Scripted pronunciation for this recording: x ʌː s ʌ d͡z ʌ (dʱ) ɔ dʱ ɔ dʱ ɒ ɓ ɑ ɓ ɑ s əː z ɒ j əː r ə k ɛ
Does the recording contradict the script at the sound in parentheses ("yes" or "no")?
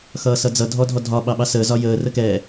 no